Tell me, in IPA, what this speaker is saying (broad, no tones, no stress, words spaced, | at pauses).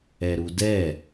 ɛɾudɛ